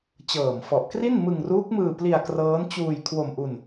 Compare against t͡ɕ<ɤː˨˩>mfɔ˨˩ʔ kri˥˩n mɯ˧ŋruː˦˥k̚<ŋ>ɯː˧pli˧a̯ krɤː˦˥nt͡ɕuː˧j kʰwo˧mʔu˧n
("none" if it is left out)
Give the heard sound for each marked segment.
ɤː˨˩, m

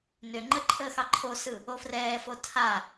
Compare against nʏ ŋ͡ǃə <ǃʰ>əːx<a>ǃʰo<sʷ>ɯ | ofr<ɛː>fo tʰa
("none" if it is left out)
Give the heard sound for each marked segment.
ǃʰ, ɑ, s, ɛː

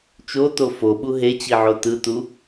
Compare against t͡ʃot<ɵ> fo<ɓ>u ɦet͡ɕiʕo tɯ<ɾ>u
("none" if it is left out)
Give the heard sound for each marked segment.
o, ɓ, t

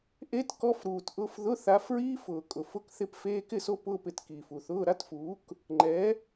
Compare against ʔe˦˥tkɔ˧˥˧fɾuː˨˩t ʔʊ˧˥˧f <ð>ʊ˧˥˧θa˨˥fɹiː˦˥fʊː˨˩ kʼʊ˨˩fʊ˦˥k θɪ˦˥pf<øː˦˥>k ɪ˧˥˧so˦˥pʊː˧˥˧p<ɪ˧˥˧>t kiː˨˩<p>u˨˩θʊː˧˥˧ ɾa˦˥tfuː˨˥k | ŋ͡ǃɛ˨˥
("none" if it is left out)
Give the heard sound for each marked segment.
ð, eː˦˥, ɪ˨˩, f

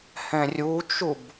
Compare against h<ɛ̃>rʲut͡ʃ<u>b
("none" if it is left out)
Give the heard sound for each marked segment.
ɛ̃, u

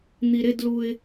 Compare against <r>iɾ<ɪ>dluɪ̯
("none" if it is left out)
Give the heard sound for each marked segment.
n̪, ɪ

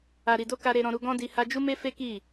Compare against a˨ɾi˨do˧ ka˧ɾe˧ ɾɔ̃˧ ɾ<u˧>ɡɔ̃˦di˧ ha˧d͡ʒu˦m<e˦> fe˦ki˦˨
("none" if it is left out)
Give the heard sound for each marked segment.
u˧, e˦

